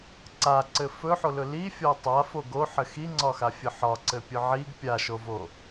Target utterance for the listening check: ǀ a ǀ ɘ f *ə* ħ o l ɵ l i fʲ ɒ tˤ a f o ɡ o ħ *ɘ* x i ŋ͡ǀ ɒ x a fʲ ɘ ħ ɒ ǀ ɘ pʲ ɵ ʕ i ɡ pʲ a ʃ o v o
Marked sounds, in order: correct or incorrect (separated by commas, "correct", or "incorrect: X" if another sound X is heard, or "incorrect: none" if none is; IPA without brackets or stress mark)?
incorrect: ɵ, correct